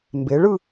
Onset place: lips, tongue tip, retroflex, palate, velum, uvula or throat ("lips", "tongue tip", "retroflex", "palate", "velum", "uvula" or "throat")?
lips